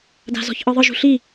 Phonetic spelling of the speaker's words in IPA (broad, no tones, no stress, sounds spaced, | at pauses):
d a̤ z ɔ̤ ç ʔ ɯ ðˤ ɯ ʒ ṳ ɬ i